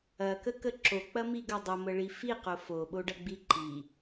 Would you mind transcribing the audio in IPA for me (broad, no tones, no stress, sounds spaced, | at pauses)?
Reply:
ɐ k ə k ə ǁ o k͡p ɐ m i ɡ ɐ dˤ ə m ə ɭ i f i q o f o ɓ o ɖ ɐ ɡ͡b i ǃ i